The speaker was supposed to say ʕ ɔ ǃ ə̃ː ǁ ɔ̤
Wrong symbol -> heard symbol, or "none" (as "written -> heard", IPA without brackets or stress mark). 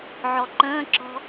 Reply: none